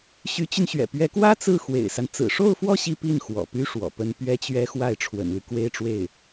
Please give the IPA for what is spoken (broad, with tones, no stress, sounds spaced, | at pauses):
ɕ y˧˥ t͡ɕ y˧ n ɕ ɥ ɛ̰˨˩ p ɥ ɛ˧˥ k w ä˥ t͡s ɹ̩˥˩ x w ḛ˨˩ ɪ̯ s a˦ n t͡s ɹ̩˨˩ ʂ o˥˧ ʊ̯ f w ɔ˥˧ ɕ i˥˧ p i˥˩ n x w ɔ̰˨˩ p y˥ ʂ w ɔ̰˨˩ p ə˥ n p ɥ ɛ˥ t͡ɕ ɥ ɛ˥ x w a˥˩ ɪ̯ ʈ͡ʂʰ w ə̰˨˩ n l y˦ k w e˥ ɪ̯ ʈ͡ʂ w e˥˩ ɪ̯